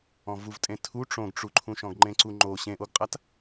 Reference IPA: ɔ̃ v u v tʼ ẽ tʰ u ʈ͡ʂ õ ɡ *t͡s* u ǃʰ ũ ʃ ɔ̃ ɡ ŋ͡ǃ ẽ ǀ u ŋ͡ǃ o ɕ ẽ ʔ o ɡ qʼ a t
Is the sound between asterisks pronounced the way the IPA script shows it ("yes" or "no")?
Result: no